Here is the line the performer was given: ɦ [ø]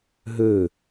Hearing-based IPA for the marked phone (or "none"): ø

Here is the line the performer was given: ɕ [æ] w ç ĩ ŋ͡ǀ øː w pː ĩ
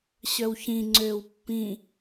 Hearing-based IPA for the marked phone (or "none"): œ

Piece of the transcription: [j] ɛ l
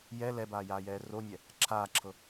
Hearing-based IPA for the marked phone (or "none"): j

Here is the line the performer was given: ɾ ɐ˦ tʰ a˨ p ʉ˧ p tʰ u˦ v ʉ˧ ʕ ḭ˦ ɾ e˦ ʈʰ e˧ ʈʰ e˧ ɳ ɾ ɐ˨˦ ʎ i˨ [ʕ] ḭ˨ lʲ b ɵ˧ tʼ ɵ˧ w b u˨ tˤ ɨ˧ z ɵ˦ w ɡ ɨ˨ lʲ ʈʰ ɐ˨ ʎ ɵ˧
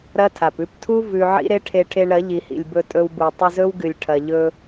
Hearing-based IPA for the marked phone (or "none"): h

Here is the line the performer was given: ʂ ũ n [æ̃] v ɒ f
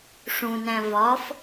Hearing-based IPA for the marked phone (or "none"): æ̃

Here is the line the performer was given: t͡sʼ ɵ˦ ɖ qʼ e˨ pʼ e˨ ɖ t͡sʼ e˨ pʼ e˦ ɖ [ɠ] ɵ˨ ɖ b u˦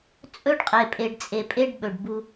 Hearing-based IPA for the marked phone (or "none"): ɓ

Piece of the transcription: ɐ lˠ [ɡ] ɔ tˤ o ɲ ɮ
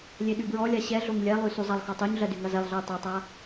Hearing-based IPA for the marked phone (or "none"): x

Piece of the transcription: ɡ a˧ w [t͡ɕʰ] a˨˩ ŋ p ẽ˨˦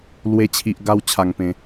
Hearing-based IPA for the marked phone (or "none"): t͡ɕʰ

